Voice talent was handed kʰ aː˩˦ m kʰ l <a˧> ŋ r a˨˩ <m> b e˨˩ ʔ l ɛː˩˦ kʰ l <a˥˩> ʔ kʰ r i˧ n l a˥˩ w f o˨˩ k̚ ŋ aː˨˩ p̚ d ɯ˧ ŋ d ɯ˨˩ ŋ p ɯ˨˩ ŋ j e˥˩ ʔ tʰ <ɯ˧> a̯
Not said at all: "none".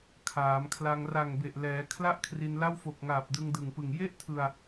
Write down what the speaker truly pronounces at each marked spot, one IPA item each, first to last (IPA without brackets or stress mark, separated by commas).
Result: a˧, ŋ, a˥˩, ɯ˧